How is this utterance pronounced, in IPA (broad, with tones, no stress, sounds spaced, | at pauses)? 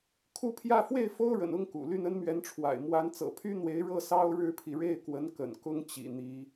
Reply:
kʰ u˥˧ pʰ j ä˥˧ f w e˥˩ ɪ̯ f o˥ ʊ̯ ɻ ə̰˨˩ n ʊ˥ ŋ k ṵ˨˩ l y˥˩ n ə˥ n m ɥ ɛ˧˥ n ʈ͡ʂʰ w a̰˨˩ ɪ̯ m w a˧˥ n t͡s ɤ̰˨˩ pʰ y˥ n̪ w e˧˥ ɪ̯ ɻ ɤ˥˩ s ɑ˥ ʊ̯ ɻ ɻ̩˥ pʰ i˨ ɻ e˥˩ ɪ̯ k w ə˧˥ n k ə̰˨˩ n k ʊ˥ ŋ t͡ɕ ḭ˨˩ n̪ i˧˥